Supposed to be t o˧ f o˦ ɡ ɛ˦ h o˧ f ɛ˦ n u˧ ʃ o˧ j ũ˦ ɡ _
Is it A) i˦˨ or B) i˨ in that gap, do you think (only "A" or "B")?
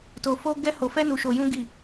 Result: A